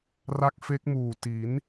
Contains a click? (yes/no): no